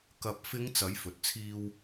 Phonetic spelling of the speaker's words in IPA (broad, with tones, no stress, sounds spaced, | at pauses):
k ɐ˨ p̚ f ɪ˨˧ ŋ t͡s ɐ˨˥ j f ɵ˨ t̚ t͡sʰ iː˥ w